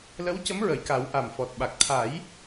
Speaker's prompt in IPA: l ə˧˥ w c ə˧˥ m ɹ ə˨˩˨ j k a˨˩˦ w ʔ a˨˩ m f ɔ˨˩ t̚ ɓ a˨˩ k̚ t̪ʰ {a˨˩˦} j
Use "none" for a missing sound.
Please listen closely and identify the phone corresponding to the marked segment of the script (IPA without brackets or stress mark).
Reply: a˨˩˦